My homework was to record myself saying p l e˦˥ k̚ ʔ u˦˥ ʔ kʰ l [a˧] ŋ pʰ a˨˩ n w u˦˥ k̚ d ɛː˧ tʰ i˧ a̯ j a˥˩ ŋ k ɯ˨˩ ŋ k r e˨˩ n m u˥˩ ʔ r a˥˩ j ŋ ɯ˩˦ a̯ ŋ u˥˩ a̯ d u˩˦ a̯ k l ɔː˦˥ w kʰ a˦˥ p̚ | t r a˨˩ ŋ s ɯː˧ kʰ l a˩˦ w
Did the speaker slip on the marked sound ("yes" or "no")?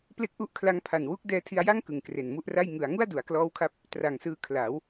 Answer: yes